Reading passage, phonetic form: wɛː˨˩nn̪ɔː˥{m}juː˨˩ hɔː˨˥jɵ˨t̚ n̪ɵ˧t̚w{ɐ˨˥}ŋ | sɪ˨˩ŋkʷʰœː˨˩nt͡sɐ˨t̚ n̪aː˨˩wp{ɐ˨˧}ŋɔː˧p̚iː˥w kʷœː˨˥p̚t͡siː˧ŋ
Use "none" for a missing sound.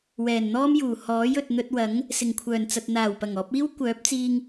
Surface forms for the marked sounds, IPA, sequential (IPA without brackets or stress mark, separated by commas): m, ɐ˨˥, ɐ˨˩